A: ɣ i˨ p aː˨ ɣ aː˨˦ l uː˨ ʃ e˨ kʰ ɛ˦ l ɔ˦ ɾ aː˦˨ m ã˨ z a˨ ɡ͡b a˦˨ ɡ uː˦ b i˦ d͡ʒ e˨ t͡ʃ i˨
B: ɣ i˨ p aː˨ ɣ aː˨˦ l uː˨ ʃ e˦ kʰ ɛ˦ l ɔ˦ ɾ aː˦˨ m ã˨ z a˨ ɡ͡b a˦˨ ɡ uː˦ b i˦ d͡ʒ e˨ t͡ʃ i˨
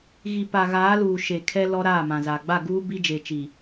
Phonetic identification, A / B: A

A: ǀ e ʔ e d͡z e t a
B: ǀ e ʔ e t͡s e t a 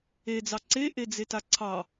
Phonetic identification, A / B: A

